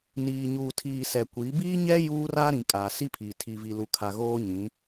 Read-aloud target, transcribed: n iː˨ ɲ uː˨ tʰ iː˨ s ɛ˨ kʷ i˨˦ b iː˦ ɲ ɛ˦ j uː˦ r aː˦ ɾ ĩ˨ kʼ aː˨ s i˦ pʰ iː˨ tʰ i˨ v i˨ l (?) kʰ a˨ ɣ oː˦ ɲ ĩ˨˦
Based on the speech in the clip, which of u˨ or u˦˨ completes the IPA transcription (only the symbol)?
u˨